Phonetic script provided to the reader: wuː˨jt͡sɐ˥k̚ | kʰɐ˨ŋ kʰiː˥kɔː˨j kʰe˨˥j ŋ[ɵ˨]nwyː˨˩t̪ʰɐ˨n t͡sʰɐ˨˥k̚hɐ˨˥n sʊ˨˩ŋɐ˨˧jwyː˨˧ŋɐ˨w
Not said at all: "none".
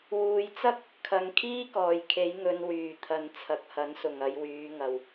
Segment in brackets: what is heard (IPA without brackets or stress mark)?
ɵ˧